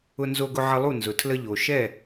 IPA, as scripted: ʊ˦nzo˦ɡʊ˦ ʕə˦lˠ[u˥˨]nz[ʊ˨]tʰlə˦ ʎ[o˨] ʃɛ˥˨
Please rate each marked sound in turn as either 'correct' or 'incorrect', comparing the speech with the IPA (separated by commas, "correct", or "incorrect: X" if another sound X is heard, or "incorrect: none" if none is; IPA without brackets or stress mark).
correct, correct, correct